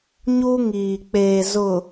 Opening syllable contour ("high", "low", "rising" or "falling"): high